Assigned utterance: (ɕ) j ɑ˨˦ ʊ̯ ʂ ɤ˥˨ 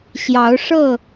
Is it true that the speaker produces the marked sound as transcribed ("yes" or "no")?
yes